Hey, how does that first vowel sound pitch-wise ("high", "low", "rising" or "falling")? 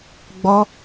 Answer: high